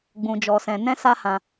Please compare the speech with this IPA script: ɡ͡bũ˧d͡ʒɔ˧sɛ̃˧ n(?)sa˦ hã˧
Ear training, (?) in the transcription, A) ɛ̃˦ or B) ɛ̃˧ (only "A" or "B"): A